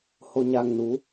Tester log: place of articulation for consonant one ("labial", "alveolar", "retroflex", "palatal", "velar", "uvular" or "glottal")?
glottal